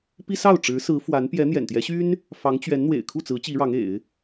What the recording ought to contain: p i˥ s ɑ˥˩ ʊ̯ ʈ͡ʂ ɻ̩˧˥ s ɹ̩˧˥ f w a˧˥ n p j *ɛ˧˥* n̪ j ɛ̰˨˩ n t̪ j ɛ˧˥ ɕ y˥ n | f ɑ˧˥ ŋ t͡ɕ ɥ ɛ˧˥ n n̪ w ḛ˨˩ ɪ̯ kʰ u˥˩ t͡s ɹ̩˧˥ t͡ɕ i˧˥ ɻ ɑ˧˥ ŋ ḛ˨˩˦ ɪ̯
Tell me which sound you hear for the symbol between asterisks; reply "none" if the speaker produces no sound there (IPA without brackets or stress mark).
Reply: ɛ˧˥